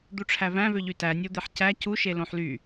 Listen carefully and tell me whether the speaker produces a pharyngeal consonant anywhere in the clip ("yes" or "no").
yes